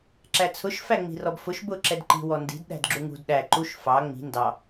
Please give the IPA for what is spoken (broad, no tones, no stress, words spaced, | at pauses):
ǁæt͡sʰʊʃ fæŋ͡mi̤rɔbfʊʃ bʊ ǁɛdǃi̤ wɔndi̤d ɗæ̤dɡ͡ǁuŋṳd ɗæ ǃuʃ fɑ ŋ͡mi̤ ndɑ